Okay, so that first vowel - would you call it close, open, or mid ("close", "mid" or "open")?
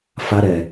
open